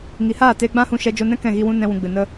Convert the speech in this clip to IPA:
ŋ i˨ h aː˦˨ t eː˧ ɡ͡b ã˦ h ũ˧ ʃ ɛ˧ d͡ʒ o˧ n ɛ̃˦ k ɛ̃˦˨ ɣ i˧ w ũ˦ n ɛ̃˧ w ũ˨ ɡ͡b ɨ˨ n ə˦

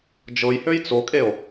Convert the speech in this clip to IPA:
d͡ʒ ɤ j h ø j t͡s o kʼ e o̯

